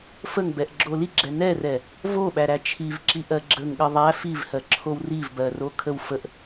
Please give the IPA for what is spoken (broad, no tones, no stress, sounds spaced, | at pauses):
f ə ŋ b ɛ ʔ ɡ͡ǁ o l i ɡ͡ǁ ɛ n ɛ r ɛ | v o ɓ æ ɾ æ t͡ʃʰ i v ǁ i ʔ ɜ ɡ͡ǁ ə ŋ ɠ ə ðˤ æ f i v h ɜ ǁʰ o w r i v b ɜ r o kʰ ə w f ə ʔ